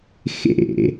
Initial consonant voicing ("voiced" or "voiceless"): voiceless